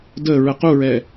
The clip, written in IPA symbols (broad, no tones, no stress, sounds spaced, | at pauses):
d ə ɹ ə q u ɹ ɛ